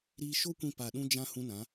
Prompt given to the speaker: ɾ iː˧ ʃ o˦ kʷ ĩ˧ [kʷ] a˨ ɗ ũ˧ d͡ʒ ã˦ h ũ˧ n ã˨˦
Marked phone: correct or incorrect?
incorrect